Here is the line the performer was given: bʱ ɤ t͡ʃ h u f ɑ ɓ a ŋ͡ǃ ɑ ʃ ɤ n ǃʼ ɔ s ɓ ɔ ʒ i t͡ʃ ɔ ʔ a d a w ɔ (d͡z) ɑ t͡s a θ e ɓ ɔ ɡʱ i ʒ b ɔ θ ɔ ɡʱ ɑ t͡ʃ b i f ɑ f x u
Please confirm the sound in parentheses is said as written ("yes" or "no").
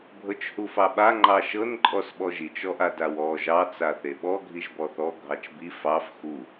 no